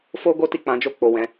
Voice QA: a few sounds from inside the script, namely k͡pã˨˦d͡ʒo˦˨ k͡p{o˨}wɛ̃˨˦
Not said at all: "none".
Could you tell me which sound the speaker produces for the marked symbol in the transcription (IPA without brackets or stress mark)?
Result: o˨